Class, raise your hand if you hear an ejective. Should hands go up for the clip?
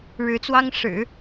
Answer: no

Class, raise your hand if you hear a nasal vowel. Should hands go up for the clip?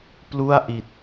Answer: no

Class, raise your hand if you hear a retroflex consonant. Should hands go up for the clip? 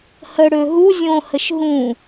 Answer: yes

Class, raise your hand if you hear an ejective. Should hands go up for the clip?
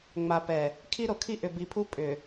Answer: yes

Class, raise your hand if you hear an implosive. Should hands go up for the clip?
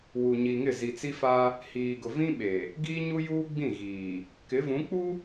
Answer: yes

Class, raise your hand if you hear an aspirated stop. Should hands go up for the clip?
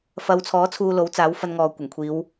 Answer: yes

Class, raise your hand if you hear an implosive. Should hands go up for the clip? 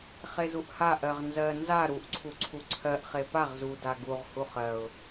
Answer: no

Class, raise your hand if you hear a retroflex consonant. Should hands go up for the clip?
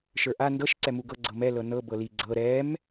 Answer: no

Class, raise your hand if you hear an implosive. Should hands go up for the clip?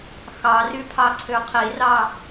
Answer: no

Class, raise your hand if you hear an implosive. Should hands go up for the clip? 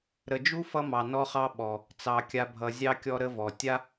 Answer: yes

